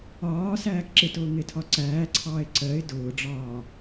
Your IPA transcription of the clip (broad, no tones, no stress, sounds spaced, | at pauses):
ɒː s æː k ǁ ɪ t ʊː ŋ ɪ tʰ ɒ ǀ æː ǀʰ ɑː ɪ̯ ǀ ɜ ɪ̯ d ʊː ɖ͡ʐ ɒː